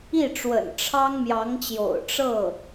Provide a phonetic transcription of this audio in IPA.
i˥˩ʈ͡ʂwə̰˨˩n ʈ͡ʂʰɑ˥ŋ mjɑ˧˥ŋt͡ɕjo̰˨˩ʊ̯ ʈ͡ʂɤ˥˩

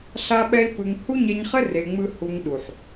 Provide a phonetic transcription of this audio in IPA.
ɬa˦ɓɛ˦i̯pɯ˧ŋ hu˦ɲɛ˧ɲχɘ˦ re˧ŋ͡mɯ˦ hu˧ŋɗu˨ħ

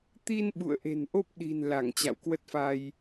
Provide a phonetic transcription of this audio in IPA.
t̪i˧n ɓṵ˧˨ə̯ʔe̤˨˩nʔo˦˥p̚ɗi̤˨˩n la˧˩ŋ t͡ɕa̰˧˨wkwə˦˥t̚fa˧j

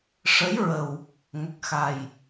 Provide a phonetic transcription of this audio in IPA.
ʂə˧˥j ɹə˨˩w | ŋə˨˩k̚ xa˨˩j

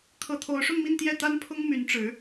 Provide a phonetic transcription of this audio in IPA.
kʰɤ˧˥t̪ʰo˧˥ʊ̯ʂʊ˥˧ŋmi˥˧n t̪jɛ˥˩t̪a˥npʰʊ˥ŋ my˧˥nʈ͡ʂɻ̩˧˥

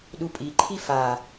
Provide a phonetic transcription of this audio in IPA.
ɗupʼiǃʰi fa

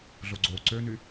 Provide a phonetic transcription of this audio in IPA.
ɮoɡ͡ǀo ǀøny

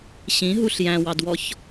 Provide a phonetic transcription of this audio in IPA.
ɕĩɦuɬ jæ̃wɑdwɔç

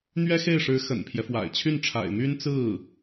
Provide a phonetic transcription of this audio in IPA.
n̪ɥɛ˥xe˥˩ɪ̯ʂɻ̩˧˥ xə̰˨˩npʰjɛ˦fwa̰˨˩ɪ̯ t͡ɕʰy˥˩nʈ͡ʂʰa̰˨˩ɪ̯my˥n t͡sɹ̩˥˩

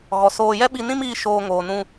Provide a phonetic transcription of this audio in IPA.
ɣɔ˨soː˧ jɛ˦ɓi˧nĩ˦miː˧ ʃoː˧ŋoː˨ nũ˧

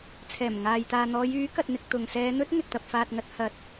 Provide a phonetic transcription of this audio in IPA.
t͡sʰɛː˨˩mŋaː˨jt̪aː˨ n̪ɔː˨˧jyː˨˥ kɐ˨t̚n̪ɪ˨k̚ t̪ʊ˨ŋsɛː˧n̪ɵ˥t̚ ŋɪ˨k̚t̪ɐ˨p̚faː˨t̚ ŋɐ˧t̚ hɐ˨˥t̚

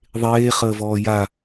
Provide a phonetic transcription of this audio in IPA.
ðˤeː χəːvɔːja

